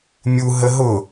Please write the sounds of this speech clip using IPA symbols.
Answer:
mʲ u ɦ ə ɦ ʊ

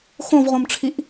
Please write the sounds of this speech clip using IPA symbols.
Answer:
x õ v ʁ õ m ʈ͡ʂʰ i ʔ

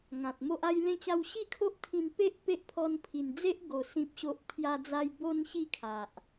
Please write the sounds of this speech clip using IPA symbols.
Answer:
ŋ ã˨ t̚ m o˦ ʔ a˧ j l ẽ˧ t͡ɕ a˧ w ɕ i˥˧ kʰ o˦ ʔ t̪ʰ ĩ˧ n p e˦ ʔ p e˦ ʔ pʰ ɔ˧ n pʰ i˨˩ n d͡z e˦ ʔ ɡ o˧ s ĩ˦ p̚ ɕ o˦ ʔ t̪ʰ j a˧ d͡z a˧ j b o˧ n ɕ i˥˧ kʰ a˨ ʔ

